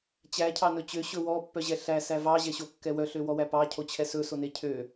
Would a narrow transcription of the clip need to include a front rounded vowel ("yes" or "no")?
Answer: yes